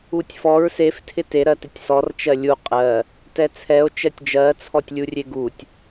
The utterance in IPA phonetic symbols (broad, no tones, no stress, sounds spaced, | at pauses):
u tʲ f ɔ ɹ s e f tʰ ɪ t e ɾ ɜ t ɪ tʲ s ɔ r t͡ʃ ɜ lʲ u qʼ ɜ | t ɛ t͡sʰ ɛ o̯ t͡ʃ ɜ tʲ d͡ʒ ɜ t͡sʰ ɔ tʲ lʲ u rʲ e ɡ u tʲ